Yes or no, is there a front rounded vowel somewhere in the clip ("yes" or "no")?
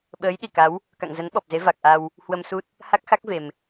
no